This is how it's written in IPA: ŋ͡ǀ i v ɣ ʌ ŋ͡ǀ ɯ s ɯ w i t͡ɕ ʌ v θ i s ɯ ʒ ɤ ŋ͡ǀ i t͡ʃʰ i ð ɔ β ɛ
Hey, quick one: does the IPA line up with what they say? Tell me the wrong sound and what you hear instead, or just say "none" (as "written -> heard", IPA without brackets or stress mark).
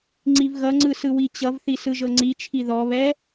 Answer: none